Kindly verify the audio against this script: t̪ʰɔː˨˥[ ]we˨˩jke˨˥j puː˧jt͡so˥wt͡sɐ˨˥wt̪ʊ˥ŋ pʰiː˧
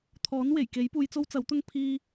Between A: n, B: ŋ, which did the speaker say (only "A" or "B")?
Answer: A